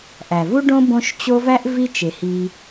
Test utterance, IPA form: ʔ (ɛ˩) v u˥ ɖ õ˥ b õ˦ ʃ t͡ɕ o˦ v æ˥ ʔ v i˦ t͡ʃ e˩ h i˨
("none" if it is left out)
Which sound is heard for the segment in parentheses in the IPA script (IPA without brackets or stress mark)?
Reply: æ˩